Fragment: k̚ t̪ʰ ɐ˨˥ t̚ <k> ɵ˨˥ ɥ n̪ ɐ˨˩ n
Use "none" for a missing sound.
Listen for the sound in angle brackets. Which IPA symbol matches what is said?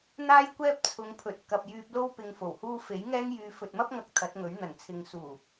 ŋ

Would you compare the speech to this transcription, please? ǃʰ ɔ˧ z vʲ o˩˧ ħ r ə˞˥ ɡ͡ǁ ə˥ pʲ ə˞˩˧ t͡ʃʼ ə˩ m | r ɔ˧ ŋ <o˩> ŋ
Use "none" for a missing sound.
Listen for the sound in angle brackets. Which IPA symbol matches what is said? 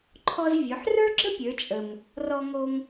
o˧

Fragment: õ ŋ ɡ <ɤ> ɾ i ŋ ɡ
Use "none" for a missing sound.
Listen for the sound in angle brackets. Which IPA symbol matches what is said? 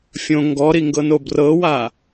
ɔ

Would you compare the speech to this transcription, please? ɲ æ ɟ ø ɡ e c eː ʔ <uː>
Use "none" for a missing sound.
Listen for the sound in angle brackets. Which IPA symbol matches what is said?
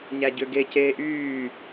yː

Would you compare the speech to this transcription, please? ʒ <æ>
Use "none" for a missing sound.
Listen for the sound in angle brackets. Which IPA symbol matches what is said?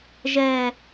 ɛ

